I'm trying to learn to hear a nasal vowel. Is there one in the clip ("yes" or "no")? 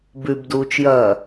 no